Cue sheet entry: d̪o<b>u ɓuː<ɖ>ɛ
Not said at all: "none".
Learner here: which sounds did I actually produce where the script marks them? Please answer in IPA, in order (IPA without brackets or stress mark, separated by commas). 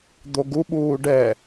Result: ɡ, ɖ